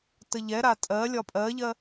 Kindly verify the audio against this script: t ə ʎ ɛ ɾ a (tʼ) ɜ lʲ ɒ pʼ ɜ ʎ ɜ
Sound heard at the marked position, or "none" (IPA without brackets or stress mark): tʼ